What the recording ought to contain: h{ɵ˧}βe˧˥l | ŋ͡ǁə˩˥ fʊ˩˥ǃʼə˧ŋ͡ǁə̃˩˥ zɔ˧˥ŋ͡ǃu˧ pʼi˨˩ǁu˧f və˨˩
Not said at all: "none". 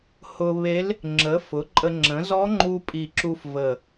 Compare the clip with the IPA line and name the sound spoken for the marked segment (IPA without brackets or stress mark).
ʊ˧